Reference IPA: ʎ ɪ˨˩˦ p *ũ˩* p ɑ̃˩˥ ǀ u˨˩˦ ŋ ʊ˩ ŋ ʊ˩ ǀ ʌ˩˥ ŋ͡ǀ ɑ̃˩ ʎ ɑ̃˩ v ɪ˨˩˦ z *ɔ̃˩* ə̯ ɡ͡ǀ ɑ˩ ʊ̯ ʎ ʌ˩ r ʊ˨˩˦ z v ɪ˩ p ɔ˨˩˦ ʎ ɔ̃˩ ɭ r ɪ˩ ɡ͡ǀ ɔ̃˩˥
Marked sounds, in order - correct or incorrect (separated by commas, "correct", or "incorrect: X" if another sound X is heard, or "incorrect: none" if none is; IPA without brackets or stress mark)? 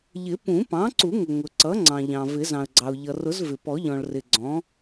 incorrect: ũ˨˩˦, incorrect: ɑ̃˩